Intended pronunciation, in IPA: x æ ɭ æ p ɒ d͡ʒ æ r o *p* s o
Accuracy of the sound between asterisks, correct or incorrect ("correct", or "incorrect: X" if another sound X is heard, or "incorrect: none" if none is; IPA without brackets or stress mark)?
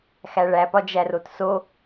incorrect: t